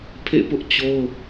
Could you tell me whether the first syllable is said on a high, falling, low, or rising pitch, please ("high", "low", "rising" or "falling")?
falling